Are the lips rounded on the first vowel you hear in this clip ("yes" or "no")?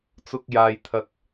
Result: yes